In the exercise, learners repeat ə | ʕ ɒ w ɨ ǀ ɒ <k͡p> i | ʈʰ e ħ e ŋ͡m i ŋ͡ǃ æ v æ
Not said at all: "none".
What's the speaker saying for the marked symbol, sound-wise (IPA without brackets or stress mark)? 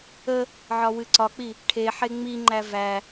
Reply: k͡p